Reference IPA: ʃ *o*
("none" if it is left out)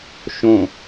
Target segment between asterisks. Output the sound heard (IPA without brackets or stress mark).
õ